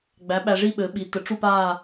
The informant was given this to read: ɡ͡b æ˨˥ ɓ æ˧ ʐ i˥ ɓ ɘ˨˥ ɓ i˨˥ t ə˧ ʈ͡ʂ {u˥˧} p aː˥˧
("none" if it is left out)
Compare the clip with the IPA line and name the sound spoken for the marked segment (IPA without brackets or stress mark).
u˥˧